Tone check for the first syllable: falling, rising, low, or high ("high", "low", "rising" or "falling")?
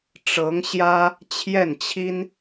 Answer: rising